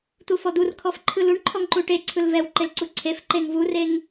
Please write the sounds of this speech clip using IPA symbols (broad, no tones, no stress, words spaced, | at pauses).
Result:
t̪ufɔd̪urkʰɔf ǃʰɯluɳ ǃʰɔŋǃuʈe ǀʰɯlvɛw ǃelǀuǀʰef ǃeŋvureŋ